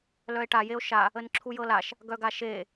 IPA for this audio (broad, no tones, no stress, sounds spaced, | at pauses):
l œ e̯ ʈ a j e o̯ ʃ a | ə n ǁʰ u j ɤ l a ʃ | ɡ œ ɡ a ʃ e